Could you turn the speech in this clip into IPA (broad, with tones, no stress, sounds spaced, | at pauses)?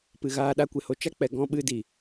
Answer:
p ɨ˨ ɣ aː˧ ɗ a˧ kʷ e˨ h o˧ t͡ʃ a˦ k͡p ɛ˨ ɡ ɔ̃˧ ɓ ɨ˧ d i˨